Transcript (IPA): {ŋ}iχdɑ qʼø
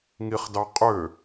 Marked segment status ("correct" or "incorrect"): correct